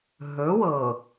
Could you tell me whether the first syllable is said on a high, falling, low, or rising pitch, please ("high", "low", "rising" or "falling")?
rising